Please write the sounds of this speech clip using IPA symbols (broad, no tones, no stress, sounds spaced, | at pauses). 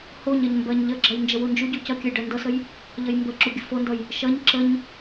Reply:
h o ɲ ɜ ɲ m b ɜ ɲ ʎ ə ɡ͡ǁ ɜ j n d͡ʒ ə w u n d͡ʒ u ɟ u c ʌ kʲ ə j ɖ ɜ n d ʌ s ə j | ʎ ə j m b ə ǁ u ɡʲ ə f o n d ʌ j | ʃ ʌ ɲ ǁ ə ɲ